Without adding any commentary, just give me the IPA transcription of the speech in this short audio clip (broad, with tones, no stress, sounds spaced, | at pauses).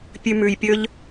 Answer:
pʲ ʉ˧ m ʉ˨ j pʲ ɵ˦ ʎ